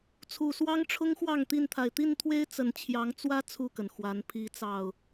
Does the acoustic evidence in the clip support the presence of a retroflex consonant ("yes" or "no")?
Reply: yes